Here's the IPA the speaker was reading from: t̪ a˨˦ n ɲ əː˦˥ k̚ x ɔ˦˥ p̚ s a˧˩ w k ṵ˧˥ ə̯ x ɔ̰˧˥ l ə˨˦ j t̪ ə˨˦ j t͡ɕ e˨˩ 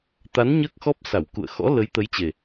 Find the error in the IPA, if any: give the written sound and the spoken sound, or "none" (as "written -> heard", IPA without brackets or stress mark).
ṵ˧˥ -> ṵ˧˨